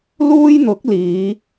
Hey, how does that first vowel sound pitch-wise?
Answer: high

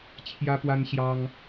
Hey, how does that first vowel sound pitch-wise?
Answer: high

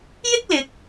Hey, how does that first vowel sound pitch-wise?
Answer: high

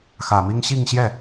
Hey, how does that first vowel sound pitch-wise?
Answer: low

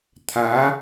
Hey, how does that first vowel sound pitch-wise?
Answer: rising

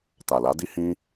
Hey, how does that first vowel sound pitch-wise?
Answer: low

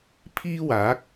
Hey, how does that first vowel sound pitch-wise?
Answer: high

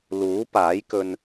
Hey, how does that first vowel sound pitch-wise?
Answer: rising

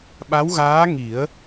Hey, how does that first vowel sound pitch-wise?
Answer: rising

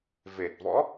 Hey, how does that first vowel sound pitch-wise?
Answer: low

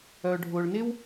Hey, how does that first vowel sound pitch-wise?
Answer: low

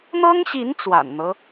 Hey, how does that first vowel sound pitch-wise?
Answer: high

